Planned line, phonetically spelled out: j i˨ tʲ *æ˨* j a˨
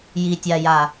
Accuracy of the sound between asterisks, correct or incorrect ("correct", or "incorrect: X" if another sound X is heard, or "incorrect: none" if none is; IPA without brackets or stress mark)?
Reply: incorrect: a˨